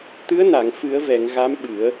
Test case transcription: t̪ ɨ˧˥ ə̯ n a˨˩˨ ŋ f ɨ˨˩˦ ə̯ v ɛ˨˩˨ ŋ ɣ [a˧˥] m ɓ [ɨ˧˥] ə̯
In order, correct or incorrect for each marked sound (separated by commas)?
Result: correct, incorrect